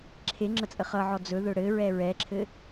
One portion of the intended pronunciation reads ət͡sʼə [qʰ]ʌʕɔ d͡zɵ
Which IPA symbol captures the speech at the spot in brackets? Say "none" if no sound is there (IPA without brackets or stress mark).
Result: χ